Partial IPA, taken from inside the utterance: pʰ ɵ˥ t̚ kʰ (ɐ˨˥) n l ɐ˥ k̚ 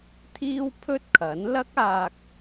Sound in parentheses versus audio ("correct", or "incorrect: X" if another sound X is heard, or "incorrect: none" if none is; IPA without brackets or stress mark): correct